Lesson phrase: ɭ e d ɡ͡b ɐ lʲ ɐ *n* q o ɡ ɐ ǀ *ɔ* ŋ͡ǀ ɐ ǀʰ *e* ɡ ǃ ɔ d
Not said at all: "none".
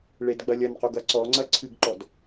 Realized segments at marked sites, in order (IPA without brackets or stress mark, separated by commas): n, ɔ, ɨ